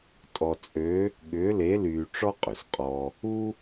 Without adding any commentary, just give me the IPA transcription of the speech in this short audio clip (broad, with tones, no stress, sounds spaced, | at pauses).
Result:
tʼ ɔ˧ t͡sʼ ø˧˥ | ɠ ʏː˧˥ l e˧˥ l yː˧ ʈ͡ʂ ɔ˥ qʼ ʏ˩ s qʼ ɔ˧ | u˥